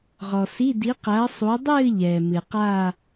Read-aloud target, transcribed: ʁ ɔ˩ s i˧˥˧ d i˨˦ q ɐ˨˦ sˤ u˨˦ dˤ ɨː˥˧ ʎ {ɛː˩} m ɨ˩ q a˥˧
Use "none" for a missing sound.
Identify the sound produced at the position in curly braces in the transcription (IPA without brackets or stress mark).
ɛː˩